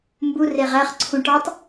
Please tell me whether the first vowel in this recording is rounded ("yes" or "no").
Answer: yes